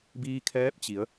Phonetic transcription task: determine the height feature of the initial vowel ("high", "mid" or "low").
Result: high